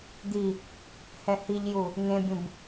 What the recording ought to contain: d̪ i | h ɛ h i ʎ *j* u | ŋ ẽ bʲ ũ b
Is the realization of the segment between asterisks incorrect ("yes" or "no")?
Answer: no